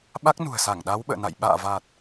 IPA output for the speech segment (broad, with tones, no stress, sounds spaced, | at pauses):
ɓ a˦˥ k̚ n ṳ˨˩ ə̯ s a˧˩ ŋ ɗ a˨˦ w ɓ ə̰ː˧˨ n a̰˧˨ j ɓ a̰ː˧˨ v a˨˩ t̚